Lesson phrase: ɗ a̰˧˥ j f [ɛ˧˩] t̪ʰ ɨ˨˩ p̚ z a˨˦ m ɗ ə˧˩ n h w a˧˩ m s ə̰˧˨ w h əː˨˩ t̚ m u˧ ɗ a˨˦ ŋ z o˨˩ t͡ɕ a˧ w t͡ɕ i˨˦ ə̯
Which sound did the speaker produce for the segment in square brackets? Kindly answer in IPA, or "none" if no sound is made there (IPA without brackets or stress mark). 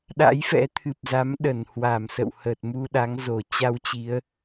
ɛ̰˧˥